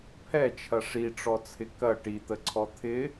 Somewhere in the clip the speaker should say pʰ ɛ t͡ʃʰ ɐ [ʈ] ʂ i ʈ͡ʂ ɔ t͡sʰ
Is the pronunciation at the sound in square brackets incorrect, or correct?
incorrect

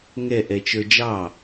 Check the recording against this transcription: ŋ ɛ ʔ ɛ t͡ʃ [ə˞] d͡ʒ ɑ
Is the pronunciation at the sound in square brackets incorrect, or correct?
correct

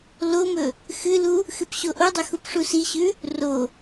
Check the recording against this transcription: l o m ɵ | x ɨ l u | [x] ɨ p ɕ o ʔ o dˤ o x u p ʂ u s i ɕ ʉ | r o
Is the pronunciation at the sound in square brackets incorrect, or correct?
correct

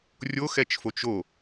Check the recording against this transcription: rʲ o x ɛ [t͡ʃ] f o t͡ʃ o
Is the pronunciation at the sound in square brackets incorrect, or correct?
correct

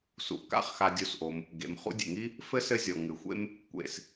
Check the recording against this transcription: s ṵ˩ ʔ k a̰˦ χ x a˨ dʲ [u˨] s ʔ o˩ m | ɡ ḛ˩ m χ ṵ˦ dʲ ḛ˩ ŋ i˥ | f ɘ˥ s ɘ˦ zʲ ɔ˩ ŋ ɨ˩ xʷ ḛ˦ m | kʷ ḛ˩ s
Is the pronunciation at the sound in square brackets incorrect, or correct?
correct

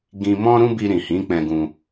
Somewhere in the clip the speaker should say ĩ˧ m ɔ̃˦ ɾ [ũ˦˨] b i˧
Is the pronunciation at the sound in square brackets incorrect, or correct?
incorrect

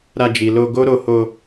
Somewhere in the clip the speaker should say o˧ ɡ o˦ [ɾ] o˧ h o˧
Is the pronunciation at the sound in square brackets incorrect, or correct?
correct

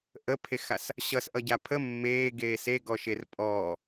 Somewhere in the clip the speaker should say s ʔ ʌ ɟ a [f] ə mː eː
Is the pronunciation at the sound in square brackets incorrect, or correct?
incorrect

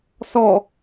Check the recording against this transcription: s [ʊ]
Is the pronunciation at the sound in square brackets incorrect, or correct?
incorrect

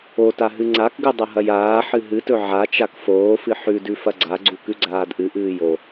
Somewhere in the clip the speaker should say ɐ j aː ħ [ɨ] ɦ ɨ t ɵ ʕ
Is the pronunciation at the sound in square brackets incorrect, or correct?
correct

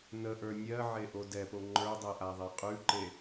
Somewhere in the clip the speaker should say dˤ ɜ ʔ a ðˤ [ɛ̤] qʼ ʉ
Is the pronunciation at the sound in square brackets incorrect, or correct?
incorrect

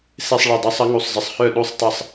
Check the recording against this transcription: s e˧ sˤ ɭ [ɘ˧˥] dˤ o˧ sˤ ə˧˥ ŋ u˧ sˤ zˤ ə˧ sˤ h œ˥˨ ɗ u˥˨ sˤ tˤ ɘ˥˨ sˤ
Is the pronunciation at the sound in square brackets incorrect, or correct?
incorrect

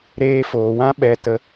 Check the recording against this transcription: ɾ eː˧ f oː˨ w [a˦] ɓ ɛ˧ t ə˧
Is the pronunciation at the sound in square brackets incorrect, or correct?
incorrect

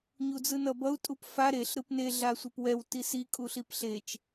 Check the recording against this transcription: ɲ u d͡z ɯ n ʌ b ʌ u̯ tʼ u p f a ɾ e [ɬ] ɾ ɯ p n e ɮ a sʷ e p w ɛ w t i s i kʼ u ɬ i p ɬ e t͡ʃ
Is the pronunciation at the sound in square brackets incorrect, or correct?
correct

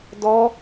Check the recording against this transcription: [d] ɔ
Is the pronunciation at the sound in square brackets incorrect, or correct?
correct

